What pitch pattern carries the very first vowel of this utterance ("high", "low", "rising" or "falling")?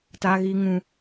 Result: low